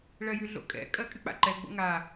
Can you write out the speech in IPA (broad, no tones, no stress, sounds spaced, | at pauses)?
ɭ ɜ j y ɮ o̰ kʼ ɛ̰ kʼ ɜ kʼ y k͡p a̰ ǃ ɛ ɡ͡b o̰ ŋ a